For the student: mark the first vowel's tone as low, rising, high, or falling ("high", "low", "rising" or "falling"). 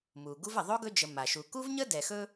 low